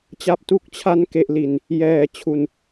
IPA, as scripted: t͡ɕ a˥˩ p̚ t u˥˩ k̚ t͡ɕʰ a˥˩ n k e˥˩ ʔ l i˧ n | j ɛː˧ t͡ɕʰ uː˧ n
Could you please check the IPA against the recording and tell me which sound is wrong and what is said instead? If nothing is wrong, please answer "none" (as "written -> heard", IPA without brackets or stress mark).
uː˧ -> u˧